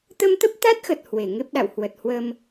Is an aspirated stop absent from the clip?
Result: yes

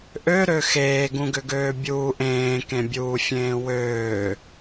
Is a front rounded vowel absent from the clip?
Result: no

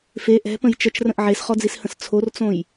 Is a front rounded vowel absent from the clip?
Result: yes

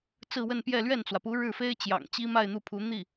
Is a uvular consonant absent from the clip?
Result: yes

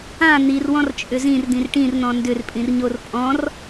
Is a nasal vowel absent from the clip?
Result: no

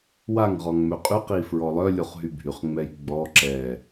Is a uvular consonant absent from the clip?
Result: no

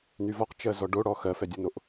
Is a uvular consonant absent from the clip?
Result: no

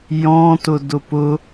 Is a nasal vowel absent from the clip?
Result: no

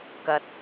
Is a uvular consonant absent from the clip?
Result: yes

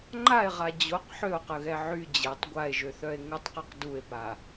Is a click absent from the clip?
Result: no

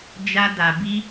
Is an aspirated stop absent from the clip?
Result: yes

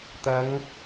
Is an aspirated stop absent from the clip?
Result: yes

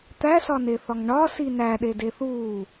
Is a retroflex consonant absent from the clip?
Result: no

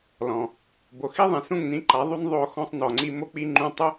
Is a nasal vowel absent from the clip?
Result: no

